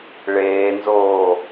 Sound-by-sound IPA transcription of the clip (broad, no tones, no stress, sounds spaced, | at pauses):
ɭ eː n z oː